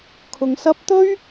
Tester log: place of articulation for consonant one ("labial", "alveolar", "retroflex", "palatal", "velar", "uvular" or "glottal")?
velar